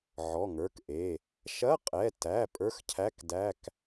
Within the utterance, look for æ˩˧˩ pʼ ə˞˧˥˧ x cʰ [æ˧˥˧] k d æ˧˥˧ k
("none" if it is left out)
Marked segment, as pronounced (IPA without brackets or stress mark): æ˧˥˧